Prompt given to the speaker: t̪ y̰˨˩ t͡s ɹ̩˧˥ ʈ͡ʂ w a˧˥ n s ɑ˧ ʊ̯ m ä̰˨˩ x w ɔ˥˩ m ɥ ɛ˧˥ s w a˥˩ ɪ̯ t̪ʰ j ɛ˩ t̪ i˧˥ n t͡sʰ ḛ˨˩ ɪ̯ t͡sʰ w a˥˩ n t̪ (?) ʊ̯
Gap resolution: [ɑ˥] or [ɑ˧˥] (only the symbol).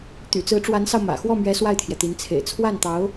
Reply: ɑ˧˥